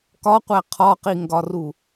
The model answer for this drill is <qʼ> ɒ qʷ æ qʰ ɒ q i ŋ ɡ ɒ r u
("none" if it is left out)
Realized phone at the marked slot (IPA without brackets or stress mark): k